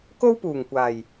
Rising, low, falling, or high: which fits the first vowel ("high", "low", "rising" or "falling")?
high